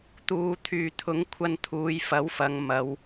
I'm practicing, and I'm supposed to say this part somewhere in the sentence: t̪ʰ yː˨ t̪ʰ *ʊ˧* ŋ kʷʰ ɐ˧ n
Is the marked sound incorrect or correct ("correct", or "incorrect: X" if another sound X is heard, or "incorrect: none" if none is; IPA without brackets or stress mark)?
incorrect: ʊ˨˥